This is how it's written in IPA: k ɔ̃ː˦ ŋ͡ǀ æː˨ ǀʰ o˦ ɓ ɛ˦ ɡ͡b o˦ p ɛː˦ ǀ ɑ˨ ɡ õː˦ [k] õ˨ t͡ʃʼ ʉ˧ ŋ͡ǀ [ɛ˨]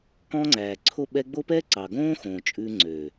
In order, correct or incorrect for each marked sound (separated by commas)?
incorrect, incorrect